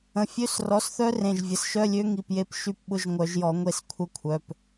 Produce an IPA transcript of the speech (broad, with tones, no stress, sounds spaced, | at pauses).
ə̃˩˧˩ fʲ ø˧˥˧ s r ɔ˩˥ s θ œ˦˥ r ẽ˩˧˩ ʒ vʲ ə˩˥ s ʃ œ˧˥˧ lʲ ø˦˥ ŋ i˩˧˩ p j e˦˨ p ʃ y˦˨ p ɓ ʊ˧˥˧ ʒ ŋʷ œ˧˩˧ ʒ j ɔ˧˩˧ ŋʷ e˦˨ s kʷʰ ə˦˥ kʷʰ œ˩˧˩ p